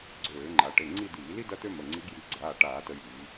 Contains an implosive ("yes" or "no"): no